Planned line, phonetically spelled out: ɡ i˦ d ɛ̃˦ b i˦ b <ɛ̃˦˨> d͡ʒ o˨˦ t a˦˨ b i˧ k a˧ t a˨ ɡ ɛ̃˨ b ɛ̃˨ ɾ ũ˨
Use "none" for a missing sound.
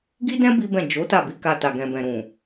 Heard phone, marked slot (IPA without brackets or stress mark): ɛ̃˦˨